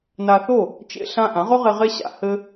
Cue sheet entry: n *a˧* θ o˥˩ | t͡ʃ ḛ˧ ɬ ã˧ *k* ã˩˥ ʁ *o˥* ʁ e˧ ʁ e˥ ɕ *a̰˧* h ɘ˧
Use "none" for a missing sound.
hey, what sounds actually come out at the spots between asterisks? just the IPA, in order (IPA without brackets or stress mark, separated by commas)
a˧, ʔ, o˥, a̰˧